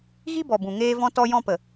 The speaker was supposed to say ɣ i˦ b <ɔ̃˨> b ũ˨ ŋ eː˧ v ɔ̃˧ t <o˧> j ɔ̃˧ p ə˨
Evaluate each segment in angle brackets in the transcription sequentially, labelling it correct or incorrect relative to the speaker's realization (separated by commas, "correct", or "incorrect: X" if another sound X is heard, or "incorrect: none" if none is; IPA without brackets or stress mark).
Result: incorrect: ɔ˨, incorrect: ɔ˧